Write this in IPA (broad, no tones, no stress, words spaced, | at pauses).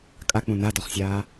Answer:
kʼak͡pũ nadɔχsʲaː